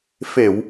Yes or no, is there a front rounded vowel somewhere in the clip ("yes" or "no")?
no